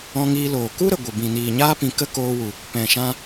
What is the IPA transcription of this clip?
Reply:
ɔ̃˧ ŋ iː˧ l oː˨ k u˦ ɾ ə˨ ɡʷ ə˨ b ĩ˨ n iː˨ ɲ aː˦ p ĩ˧ k ə˦ k oː˧ w u˨ | p ɛ̃˨ ʃ ã˧

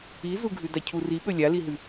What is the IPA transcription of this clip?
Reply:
i z u ɡʱ ʉ d a cʰ u r i ɓ ɵ lʲ a l i ɦ ʉ

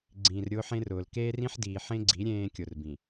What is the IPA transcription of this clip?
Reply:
ɡ͡ǀ ĩː˨ r ɾʲ ʊː˦ ħ ẽ˦ r ʊː˨ l k eː˦ r ĩ˦ ħ d iː˨ ħ ẽ˦ ɡ͡ǀ i˨˦ ɾʲ ẽː˦ kʲ ʊ˨ r b ĩ˨

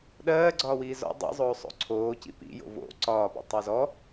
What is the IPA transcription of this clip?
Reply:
ɗ ɜː ɡ͡ǀ ɒː w iː z ɔ̰ dˤ ḭ zˤ oː sˤ o̰ ǀʰ oː c ḭ p ḭ j o̰ v o̰ ǀ ɒː p ḭ tˤ o z ɔ

